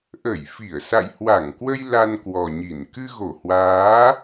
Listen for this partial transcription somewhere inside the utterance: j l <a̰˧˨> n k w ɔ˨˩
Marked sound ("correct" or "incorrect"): incorrect